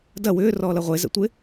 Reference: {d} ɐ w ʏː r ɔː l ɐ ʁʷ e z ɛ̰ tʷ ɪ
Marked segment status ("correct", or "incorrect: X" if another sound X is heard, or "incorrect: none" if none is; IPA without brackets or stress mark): correct